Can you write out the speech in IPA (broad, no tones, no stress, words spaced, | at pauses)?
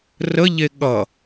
rəʎe ɠʌ